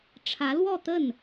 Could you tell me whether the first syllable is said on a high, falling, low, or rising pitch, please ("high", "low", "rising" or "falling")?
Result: rising